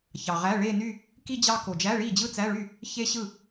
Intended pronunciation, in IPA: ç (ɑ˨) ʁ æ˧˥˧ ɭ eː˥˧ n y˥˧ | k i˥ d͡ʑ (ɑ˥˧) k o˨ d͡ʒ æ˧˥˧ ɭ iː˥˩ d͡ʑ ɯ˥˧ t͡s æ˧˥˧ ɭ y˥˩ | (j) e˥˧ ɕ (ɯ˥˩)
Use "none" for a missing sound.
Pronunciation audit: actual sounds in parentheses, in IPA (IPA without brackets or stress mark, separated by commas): ɑ˨, ɑ˥˧, ç, ɯ˥˩